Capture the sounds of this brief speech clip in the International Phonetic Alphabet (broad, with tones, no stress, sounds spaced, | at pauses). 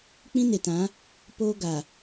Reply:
k͡p ĩ˦ n e˨ t ã˨˦ | p oː˦ ɡ a˨